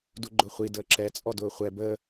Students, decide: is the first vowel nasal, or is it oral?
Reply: oral